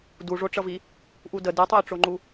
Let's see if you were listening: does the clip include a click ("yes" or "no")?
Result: yes